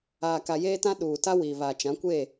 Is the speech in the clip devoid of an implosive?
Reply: no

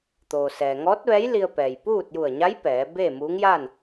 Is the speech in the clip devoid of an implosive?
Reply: yes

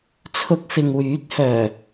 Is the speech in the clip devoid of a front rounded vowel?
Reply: no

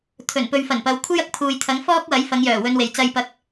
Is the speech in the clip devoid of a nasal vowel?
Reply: yes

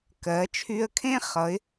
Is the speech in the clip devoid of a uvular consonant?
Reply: no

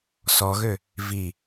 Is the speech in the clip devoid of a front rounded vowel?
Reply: no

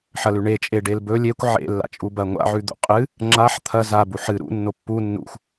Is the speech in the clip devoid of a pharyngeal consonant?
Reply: no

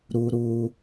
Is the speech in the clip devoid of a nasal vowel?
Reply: yes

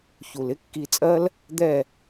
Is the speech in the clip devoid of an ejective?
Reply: no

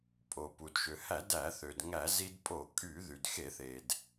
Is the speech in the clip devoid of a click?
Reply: yes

